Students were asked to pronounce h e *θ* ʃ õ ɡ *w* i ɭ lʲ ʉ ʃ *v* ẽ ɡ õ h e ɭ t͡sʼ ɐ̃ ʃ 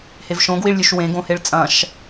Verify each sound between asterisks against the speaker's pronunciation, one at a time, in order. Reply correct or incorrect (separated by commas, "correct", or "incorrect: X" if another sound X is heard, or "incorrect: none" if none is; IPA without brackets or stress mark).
incorrect: v, correct, incorrect: w